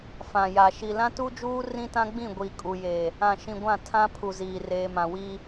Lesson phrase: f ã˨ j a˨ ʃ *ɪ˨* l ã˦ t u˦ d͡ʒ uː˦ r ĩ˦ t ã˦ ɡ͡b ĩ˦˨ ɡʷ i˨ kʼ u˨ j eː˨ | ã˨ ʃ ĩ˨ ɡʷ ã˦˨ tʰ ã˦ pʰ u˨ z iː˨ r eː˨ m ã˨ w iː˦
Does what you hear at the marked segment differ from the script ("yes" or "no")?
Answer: yes